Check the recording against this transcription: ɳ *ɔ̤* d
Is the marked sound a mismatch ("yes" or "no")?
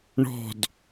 no